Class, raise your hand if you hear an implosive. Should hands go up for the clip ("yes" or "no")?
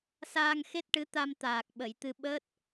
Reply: yes